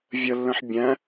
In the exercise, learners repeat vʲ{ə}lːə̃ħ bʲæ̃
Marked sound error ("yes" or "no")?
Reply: no